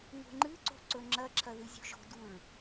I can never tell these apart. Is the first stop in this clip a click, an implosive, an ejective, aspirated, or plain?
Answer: click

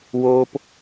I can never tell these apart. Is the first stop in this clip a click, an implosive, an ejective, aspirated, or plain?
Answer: plain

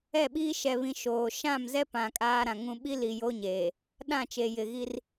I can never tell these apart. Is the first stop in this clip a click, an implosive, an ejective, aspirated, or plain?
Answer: implosive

